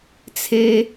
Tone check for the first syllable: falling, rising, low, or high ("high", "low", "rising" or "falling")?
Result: high